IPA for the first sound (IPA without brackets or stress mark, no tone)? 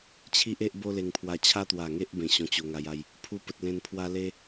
t͡ɕʰ